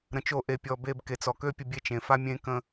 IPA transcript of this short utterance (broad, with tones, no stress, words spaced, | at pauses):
ɾə̃˧t͡ʃo˦˨ʔe˧pʲɔ˧ be˧b ke˨t͡sɔ˨kø˦ pʲə˧bʲe˦˨t͡ʃẽ˨ fa˦ mʲẽ˦ kə̃˧